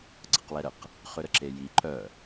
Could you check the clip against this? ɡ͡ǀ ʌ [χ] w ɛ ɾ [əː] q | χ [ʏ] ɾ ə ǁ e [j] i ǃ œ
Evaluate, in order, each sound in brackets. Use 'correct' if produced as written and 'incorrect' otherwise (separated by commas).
incorrect, incorrect, correct, correct